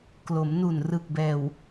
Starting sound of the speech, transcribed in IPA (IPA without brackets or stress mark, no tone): k